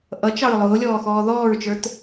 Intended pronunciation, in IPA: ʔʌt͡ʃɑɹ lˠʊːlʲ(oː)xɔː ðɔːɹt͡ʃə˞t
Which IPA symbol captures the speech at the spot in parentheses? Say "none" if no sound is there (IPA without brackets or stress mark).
ɔː